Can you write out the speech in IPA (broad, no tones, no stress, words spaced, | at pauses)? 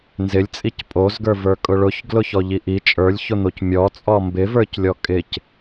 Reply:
nzɪlʲt͡sʼic pʼozɡə˞və˞kʼʊ ɭʊçɡlʊçɔʎi ʔi t͡ʃʼə˞lʲçʊn̪oc mʲɔt͡sʼɔ mbɪvə˞clʲɔ kʼɪc